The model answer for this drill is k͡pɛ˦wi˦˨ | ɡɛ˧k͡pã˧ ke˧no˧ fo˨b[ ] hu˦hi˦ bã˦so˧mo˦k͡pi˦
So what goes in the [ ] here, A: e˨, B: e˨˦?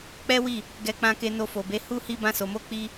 B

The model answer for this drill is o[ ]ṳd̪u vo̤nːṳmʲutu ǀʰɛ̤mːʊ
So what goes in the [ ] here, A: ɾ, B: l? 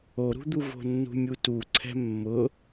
A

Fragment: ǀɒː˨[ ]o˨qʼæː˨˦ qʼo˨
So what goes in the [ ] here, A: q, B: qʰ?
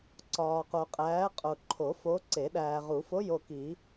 A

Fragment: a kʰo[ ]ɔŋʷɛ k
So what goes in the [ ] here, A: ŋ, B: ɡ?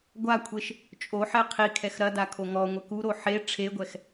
A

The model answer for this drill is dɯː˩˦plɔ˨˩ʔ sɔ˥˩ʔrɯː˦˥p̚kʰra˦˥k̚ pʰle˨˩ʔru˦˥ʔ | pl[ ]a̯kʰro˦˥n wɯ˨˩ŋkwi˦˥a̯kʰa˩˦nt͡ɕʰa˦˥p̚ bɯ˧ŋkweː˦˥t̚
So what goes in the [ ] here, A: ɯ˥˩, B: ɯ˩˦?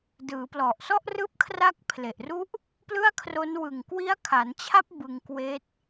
A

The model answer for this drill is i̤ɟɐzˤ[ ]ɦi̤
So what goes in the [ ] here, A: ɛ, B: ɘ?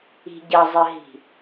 B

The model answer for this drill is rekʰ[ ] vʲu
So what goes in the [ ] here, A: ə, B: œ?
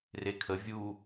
A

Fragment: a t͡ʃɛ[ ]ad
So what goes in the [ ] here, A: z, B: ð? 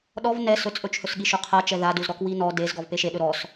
B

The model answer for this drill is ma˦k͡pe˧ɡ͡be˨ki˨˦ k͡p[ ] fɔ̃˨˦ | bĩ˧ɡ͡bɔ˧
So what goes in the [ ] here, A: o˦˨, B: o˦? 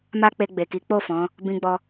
A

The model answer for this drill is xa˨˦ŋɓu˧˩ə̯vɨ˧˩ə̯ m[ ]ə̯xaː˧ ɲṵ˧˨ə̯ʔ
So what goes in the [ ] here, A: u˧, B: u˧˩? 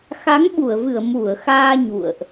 B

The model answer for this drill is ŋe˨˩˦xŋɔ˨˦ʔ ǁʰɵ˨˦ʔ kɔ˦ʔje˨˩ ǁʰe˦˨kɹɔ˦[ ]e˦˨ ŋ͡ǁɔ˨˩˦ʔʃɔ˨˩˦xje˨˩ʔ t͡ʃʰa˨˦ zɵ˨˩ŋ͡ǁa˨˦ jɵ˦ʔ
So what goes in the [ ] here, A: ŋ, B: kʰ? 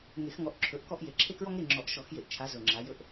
A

